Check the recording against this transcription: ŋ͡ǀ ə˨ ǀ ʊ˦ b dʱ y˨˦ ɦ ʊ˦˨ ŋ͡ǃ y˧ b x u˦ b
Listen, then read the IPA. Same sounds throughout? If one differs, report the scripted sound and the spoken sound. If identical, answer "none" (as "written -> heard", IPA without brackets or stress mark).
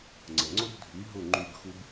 ǀ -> ŋ͡ǀ